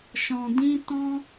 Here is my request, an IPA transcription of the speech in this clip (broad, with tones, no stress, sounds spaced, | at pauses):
ʃ ɔ̃˨ d ĩ˧ t ɔ̃˦